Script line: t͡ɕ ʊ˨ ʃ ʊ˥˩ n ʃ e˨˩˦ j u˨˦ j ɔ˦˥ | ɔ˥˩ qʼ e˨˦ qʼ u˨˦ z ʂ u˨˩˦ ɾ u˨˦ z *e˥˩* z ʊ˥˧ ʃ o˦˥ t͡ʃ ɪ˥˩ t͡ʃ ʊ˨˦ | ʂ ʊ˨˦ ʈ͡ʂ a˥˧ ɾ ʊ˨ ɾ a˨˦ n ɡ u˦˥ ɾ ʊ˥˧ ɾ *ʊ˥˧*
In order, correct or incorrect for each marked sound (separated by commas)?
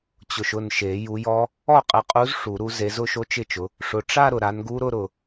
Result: incorrect, incorrect